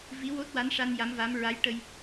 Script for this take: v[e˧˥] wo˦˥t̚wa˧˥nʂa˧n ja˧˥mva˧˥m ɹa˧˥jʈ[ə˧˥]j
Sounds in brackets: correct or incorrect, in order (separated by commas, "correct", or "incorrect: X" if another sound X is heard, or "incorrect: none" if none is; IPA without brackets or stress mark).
incorrect: i˧˥, incorrect: ə˧